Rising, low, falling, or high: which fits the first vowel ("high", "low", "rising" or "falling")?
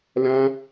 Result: high